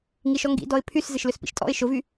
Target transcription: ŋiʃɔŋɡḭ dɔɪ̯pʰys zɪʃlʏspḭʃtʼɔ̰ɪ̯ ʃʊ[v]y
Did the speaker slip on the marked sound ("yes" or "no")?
no